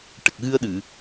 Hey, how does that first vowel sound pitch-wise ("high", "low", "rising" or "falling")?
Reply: low